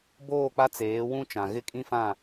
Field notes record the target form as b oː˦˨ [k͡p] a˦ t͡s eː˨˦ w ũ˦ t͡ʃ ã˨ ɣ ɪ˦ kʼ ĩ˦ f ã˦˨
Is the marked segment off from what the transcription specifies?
no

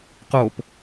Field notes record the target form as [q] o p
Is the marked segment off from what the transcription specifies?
no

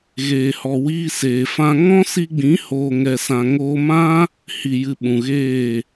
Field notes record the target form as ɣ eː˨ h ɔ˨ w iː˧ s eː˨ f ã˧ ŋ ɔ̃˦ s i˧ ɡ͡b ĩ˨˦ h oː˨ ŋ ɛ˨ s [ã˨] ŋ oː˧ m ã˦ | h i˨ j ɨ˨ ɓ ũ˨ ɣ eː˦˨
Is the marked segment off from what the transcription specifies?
no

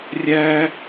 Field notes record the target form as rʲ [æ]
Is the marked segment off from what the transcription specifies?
no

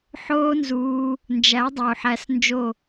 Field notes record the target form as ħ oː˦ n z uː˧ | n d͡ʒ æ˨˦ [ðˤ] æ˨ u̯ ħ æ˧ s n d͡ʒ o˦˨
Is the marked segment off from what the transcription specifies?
yes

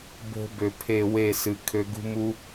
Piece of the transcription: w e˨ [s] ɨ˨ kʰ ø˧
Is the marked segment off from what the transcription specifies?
no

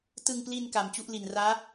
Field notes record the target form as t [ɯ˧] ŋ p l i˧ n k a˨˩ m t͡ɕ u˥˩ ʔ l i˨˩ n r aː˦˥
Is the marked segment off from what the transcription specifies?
no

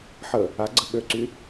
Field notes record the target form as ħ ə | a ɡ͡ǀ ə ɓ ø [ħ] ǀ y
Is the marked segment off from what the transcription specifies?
yes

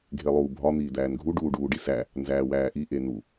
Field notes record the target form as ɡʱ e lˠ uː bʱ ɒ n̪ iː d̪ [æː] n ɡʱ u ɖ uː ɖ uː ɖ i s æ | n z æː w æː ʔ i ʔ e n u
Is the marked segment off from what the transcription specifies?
no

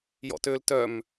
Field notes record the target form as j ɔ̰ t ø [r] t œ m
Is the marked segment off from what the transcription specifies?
yes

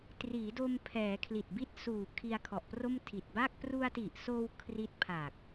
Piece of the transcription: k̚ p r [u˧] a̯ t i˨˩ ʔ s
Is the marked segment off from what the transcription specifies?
no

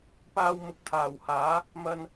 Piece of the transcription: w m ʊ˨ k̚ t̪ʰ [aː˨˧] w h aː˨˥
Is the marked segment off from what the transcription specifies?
yes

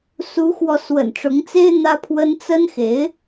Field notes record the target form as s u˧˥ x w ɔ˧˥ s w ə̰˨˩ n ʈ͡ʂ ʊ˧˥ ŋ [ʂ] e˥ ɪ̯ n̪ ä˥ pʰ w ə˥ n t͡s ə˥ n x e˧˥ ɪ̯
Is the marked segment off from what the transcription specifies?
yes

